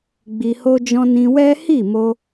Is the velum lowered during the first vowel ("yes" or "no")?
no